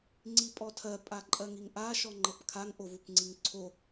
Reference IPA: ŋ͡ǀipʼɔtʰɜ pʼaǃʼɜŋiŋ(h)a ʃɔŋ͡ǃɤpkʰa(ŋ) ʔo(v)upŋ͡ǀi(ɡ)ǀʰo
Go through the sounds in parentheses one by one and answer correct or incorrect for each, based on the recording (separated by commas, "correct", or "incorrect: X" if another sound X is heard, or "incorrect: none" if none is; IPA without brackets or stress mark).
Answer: incorrect: ʔ, correct, correct, incorrect: ŋ